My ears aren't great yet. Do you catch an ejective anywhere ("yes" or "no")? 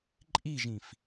yes